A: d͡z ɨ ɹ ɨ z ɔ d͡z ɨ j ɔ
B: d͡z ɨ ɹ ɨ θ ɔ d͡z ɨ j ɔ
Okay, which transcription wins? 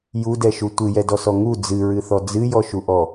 B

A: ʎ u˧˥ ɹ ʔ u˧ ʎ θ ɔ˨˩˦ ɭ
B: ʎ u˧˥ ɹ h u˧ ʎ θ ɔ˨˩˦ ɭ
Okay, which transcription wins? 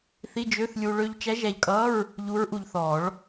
A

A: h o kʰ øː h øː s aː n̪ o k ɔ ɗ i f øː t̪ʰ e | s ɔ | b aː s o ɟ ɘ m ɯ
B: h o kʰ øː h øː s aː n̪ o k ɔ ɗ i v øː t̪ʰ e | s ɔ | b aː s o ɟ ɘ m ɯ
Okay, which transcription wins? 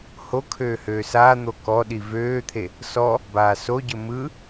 B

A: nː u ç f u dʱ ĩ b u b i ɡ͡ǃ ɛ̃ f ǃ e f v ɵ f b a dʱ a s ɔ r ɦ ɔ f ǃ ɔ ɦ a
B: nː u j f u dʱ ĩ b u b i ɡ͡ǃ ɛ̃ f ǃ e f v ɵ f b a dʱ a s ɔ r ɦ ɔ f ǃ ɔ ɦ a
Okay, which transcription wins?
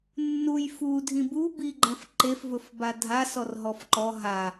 B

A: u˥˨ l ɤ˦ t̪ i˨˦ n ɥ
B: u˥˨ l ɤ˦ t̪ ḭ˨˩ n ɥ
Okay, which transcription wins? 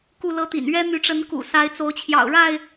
B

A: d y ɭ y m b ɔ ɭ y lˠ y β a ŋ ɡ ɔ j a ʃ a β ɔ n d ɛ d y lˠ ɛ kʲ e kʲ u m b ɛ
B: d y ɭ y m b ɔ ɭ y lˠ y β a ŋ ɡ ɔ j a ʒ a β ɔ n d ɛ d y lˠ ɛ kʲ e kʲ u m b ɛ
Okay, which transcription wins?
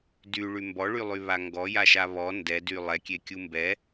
A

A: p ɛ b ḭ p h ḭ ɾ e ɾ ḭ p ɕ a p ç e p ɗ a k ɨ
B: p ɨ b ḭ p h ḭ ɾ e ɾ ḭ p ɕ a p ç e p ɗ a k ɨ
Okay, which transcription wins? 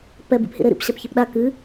A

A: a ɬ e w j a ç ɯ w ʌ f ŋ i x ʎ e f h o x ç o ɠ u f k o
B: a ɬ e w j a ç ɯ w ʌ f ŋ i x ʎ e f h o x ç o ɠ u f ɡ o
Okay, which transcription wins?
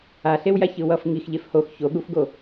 B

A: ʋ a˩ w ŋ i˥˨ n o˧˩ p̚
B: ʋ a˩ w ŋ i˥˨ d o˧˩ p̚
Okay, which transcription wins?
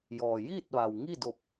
B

